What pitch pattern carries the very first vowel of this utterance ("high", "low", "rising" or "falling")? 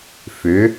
rising